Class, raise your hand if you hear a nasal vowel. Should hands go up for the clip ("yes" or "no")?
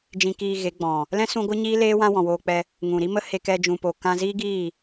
yes